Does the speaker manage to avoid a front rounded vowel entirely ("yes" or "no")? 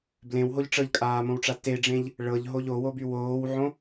no